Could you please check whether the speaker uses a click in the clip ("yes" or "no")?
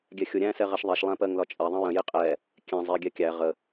no